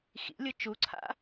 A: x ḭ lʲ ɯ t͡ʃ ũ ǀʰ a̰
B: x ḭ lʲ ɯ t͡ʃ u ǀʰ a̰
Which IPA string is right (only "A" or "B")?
B